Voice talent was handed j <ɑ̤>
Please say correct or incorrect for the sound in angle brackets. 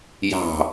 correct